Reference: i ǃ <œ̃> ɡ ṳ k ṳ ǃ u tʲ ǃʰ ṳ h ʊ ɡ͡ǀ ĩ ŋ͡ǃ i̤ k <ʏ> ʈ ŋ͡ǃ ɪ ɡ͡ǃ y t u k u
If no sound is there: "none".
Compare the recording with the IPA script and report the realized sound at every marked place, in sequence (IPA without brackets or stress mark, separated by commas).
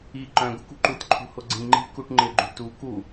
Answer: œ̃, u